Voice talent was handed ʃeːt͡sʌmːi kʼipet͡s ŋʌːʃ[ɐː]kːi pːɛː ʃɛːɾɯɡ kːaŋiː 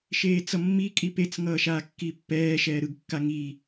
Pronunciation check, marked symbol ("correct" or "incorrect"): incorrect